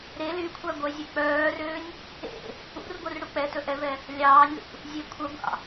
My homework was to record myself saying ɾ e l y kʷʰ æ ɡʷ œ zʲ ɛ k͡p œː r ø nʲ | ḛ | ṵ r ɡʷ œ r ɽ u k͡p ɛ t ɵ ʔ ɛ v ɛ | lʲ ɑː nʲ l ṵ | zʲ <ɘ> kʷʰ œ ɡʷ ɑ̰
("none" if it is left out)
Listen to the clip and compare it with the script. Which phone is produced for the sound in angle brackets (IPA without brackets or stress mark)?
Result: e